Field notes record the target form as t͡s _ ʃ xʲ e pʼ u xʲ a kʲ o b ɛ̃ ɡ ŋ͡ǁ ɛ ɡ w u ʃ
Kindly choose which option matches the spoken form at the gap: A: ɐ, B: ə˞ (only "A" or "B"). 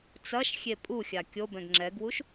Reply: A